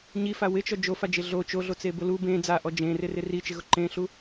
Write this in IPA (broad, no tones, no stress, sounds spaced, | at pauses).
ɲ i f a w ɪ t͡ʃ ɔ d͡ʒ o f a d͡ʒ e ɮ o t͡ʃ o ɮ o t͡s e b ʊ l u b ẽ d͡z a ʔ ɔ d͡ʒ ẽ r ɪ r ɪ r i t͡ʃ ɪ ɣ ʊ ǃ ẽ ɬ u